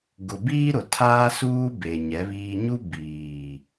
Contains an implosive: no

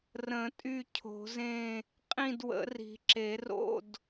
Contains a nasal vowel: yes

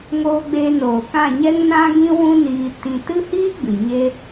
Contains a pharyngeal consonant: no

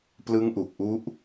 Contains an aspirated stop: no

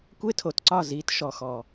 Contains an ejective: no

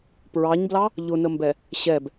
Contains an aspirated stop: no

